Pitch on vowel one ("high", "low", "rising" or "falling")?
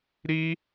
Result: high